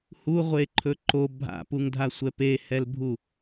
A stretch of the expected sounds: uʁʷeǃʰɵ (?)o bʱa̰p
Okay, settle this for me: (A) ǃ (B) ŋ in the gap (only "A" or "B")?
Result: A